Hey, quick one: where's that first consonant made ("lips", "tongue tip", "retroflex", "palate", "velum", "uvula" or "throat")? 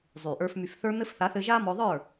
tongue tip